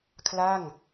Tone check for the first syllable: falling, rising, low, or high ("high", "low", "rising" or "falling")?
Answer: falling